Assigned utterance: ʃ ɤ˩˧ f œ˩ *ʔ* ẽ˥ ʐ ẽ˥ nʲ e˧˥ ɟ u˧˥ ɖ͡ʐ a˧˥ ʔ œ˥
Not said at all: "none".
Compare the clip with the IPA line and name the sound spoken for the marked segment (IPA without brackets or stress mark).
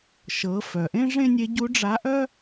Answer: ʔ